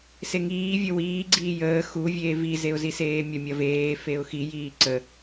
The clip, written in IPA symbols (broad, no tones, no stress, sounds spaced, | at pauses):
s e ŋ iː vʲ ə w iː ɡ͡ǀ iː j əː x u vʲ eː v i z e ʊ̯ z i s eː mʲ ɐ mʲ ɐ v eː f e ʊ̯ x i j iː ǀ ə